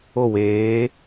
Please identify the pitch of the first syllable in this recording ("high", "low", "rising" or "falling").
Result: falling